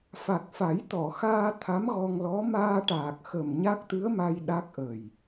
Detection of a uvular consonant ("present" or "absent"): absent